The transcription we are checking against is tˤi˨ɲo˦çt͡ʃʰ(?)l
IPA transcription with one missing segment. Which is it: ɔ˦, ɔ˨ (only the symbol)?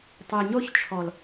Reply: ɔ˨